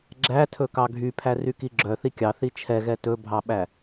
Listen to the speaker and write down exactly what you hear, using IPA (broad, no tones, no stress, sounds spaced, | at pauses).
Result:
ɡ͡ǁ æ tʰ ɵ k ɑ ɡʱ y pʰ æ r y k i ɡ͡ǁ œ θ i kʲ ɑ θ i t͡ʃʰ ɛ ɣ ɛ t ɵ bʱ ɑ ɓ æ